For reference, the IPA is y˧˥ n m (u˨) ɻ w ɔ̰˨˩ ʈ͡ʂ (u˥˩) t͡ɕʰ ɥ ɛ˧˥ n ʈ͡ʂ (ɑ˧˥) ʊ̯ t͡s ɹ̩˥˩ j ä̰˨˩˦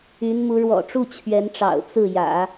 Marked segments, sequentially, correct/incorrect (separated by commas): incorrect, correct, incorrect